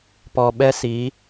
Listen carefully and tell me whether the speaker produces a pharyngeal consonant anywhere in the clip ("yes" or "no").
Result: no